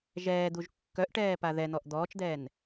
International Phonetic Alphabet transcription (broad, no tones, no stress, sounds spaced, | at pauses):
ʒ ɛː d̪ u ʒ kː œ ʔ ʈ ɛː p a ð ɛ n̪ ɔ ʔ d̪ ɔː t͡ʃ d̪ ɛː n